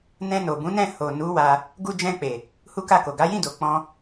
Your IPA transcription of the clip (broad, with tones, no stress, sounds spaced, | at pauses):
n ɛ̃˧ n o˨ b ũ˨˦ n ɛ̃˦˨ h o˨ n u˨˦ w a˧ | ɡ u˧ d͡ʒ ɛ̃˧ k͡p e˨ | h u˦ k a˦˨ k o˨ ɡ a˨˦ j ĩ˦˨ d o˨ k͡p ɔ̃˧